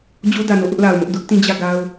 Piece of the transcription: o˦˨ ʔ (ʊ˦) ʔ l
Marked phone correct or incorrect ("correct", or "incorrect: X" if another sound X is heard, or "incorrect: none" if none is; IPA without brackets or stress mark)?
correct